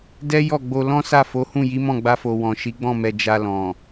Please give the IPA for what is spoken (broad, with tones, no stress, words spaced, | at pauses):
dɛ˦jɔ˦˨ɡ͡bo˧ lɔ̃˦sa˦˨fo˨˦hũ˦˨ ji˨˦mɔ̃˦˨ɡ͡ba˧fo˨ wɔ̃˨ʃi˨˦ɡ͡bɔ̃˦˨mɛ˨ d͡ʒa˨ lɔ̃˨